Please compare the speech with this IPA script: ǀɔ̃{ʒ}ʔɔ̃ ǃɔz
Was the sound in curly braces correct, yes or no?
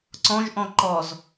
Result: yes